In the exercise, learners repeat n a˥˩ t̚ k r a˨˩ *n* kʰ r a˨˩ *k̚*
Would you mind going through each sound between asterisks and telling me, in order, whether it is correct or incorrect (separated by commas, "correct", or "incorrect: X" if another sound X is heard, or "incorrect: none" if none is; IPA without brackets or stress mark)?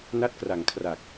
incorrect: ŋ, correct